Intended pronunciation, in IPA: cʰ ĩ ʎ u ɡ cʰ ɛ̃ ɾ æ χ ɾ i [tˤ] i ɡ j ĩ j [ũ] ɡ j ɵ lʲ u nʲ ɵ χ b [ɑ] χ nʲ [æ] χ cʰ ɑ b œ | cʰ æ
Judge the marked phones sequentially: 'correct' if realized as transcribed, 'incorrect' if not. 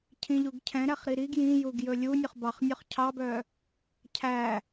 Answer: incorrect: ɾ, incorrect: u, correct, incorrect: œ

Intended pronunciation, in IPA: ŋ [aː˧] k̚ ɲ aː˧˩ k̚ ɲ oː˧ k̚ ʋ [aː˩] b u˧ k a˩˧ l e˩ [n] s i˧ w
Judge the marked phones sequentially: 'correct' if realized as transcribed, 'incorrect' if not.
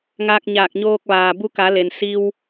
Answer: correct, correct, correct

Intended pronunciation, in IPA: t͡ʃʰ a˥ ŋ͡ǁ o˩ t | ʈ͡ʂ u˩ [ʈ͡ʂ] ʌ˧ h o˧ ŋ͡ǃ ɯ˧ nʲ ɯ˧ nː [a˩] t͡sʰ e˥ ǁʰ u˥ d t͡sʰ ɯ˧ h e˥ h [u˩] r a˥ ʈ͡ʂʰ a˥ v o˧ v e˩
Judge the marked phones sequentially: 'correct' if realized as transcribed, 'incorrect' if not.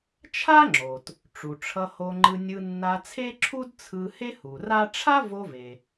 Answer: incorrect: ʈ͡ʂʰ, incorrect: a˧, correct

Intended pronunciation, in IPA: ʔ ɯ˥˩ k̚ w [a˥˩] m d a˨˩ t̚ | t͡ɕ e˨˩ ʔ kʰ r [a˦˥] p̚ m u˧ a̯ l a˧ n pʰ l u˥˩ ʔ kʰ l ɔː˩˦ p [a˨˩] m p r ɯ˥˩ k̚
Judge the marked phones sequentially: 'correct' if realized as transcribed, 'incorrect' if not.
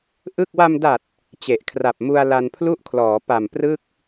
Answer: incorrect: a˧, incorrect: a˨˩, correct

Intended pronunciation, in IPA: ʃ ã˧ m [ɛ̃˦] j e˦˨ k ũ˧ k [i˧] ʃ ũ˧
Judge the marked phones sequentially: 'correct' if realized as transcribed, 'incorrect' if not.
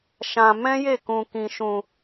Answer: correct, incorrect: ĩ˧

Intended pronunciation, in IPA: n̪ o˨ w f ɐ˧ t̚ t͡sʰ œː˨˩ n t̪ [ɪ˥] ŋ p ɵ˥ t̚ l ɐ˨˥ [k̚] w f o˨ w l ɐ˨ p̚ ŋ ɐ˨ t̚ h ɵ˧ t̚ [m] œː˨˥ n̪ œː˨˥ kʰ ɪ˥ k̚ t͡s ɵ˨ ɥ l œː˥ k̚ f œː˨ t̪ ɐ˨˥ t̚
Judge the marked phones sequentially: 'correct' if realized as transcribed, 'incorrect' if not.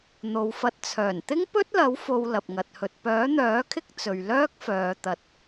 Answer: correct, incorrect: none, incorrect: p

